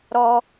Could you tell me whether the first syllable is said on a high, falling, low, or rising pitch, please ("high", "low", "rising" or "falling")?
high